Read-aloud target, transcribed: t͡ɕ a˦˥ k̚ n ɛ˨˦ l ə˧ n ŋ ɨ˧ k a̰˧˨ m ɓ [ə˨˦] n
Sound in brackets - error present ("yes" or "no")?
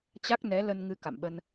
yes